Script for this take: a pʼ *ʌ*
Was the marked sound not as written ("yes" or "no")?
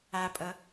no